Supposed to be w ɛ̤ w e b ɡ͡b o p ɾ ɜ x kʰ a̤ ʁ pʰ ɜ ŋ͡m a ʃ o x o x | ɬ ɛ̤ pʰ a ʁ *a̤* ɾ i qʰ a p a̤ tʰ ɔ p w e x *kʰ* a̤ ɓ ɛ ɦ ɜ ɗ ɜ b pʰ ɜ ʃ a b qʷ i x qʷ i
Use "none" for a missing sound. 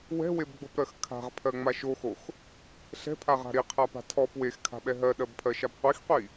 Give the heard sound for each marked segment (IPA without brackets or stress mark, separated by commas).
a̤, kʰ